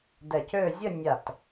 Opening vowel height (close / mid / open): mid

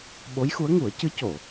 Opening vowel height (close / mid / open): mid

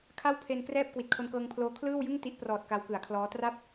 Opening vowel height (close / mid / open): open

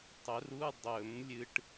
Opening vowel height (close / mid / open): mid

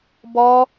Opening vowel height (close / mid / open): mid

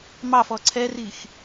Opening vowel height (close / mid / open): open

